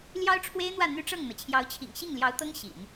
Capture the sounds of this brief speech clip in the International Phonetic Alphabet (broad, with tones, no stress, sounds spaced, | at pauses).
l j ɑ˥ ʊ̯ ʈ͡ʂʰ w e˥ ɪ̯ n̪ w ä˥˩ n̪ y˥ ʈ͡ʂ ɤ˥˩ ŋ n̪ ɤ˩ t͡ɕʰ j ɑ˧˥ ʊ̯ t͡ɕʰ ḭ˨˩ ŋ ɕ i˥˩ ŋ l j ɑ˧˥ ʊ̯ t̪ ɤ˥ ŋ ɕ ḭ˨˩˦ n